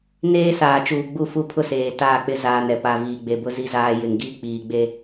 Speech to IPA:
n eː˦ s aː˨ t͡ʃ uː˨ ɡ͡b u˦˨ f u˦ pʰ ʊ˦ s eː˨ t aː˦˨ k͡p ɪ˦ z aː˨ n ɛ˨ p a˨ v iː˨ ɡ͡b e˨ b ʊ˦ z i˦ z aː˦ j ɪ˨ ŋ ɡ iː˦ k͡p iː˨ ɡ͡b e˦

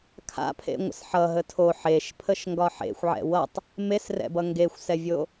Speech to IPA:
kʰ a̰ pʰ ḛ ŋʷ ə̰ s ħ ʌ ɦ ə tʰ o ħ e ʃ pʰ ə ʃ ŋ ɡ ɒ ħ ḛ xʷ ʕ ɛ̰ w ʌ tˤ | m e s r ɛ̰ b ʌ ŋ ɡ e xʷ s ɛ vʲ o

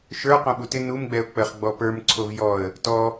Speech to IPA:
ʃ ə˞ q õ ɓ u t ɪ n u m ɡ͡b ɛ ʊ̯ k͡p ə χ ɡ͡b ɔ p ə˞ m ǀʰ o v j ɔ ə̯ | t ɔ

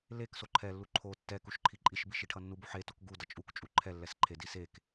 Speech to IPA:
l e k s o ǃʰ ɛ lː u ǃʰ o tː ɛ k u ʃ ǃʰ i ǃʼ i ʃ b i ʃ i ʈʰ ʌ nː u b u ħ e t o k ɡ u d ʌ t͡ʃʼ u k t͡ʃʼ u ǃʰ ɛ lː ɛ s ǃʰ e d i s e k

